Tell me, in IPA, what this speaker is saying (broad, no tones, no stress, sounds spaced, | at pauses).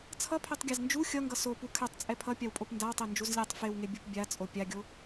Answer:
t͡sʰ ʌ pʰ ɛ tˤ ɡʲ a z n d͡ʒ u xʲ ʌ ŋ ɡ ʌ s o p u kʰ ɛ tˤ t͡sʼ ɛ pʰ ʌ pʲ a w pʼ o p n d a w tˤ e n d͡ʒ u z lʲ a tˤ f e w ŋ e bʲ u p bʲ a t͡sʼ o pʲ a ɡʲ o